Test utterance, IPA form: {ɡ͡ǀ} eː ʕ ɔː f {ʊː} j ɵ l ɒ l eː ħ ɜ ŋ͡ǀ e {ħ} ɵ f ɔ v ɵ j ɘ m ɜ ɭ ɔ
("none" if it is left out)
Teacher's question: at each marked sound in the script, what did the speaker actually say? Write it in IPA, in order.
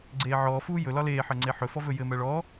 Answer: ɡ͡ǀ, uː, ħ

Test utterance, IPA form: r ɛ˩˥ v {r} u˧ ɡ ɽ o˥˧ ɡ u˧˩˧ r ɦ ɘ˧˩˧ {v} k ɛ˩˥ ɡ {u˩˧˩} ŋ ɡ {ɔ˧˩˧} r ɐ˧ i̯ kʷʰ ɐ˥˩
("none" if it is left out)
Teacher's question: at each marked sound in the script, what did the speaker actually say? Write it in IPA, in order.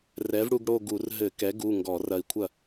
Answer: ɽ, none, u˩˧˩, ɔ˧˩˧

